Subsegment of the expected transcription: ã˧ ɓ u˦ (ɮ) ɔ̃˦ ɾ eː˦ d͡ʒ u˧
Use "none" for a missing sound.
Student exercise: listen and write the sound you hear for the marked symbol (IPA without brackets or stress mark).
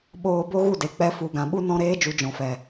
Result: n